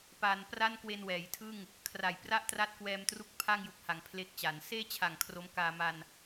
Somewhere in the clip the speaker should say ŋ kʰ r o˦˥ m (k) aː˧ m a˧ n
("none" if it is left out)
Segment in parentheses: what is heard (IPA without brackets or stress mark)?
k